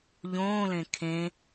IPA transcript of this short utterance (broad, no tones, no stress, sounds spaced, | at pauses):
ʎ õː l ẽ kʰ ẽ